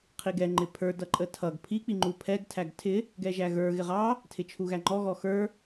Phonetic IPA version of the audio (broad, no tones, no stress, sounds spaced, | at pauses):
qʰ i ɡ ɛ ŋ͡ǃ ɪ pʰ ə˞ d ʌ ǃʼ ə tʰ ʌ ɡ pʰ i k͡p i ŋ͡ǃ u pʰ ɛ ɡ tʰ æ ɡ tʰ ɪ | ɡ ɛ ʒ æ ɣ ə˞ ɣ ɪ ʁ ɑ | tʰ ɪ t͡ʃʰ u ɣ æ ŋ͡ǃ ɔ ɣ ɔ x ə˞